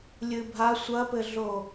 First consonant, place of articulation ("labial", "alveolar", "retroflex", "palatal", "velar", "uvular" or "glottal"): alveolar